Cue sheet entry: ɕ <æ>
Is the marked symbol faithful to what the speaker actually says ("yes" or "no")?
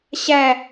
yes